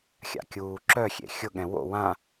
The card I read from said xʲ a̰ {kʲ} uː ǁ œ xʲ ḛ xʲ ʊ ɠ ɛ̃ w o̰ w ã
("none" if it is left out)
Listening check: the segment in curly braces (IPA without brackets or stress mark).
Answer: kʲ